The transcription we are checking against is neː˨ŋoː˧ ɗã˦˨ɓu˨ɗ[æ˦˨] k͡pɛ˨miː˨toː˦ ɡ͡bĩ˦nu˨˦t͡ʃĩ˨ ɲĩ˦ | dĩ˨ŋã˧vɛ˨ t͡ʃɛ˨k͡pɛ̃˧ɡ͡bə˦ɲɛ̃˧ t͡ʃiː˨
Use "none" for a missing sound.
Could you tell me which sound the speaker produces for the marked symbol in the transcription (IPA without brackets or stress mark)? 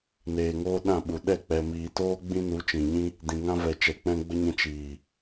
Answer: ɛ˦˨